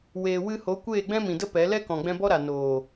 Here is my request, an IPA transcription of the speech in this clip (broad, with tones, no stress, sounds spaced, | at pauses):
w eː˨ w ɨ˧ h o˨˦ kʷ eː˦˨ ɡ͡b ɛ̃˦ m ĩ˨ d ə˦ p ɛ˨˦ l ɛ˦ k ɔ̃˨ ɡ͡b ɛ̃˧ b ɔ˦ ɾ a˨ n oː˨